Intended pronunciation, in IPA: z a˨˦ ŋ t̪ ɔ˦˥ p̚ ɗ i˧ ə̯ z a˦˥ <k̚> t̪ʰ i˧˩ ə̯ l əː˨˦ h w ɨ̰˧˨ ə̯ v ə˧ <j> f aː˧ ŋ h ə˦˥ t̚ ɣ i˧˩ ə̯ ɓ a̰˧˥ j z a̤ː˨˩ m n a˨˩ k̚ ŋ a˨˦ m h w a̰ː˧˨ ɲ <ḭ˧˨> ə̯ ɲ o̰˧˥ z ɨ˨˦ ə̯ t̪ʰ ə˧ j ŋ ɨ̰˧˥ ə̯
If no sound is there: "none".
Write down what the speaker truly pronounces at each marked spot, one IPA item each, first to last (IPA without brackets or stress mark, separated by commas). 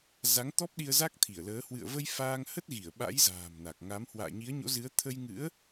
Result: k̚, j, i˨˦